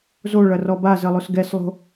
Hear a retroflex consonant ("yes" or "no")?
yes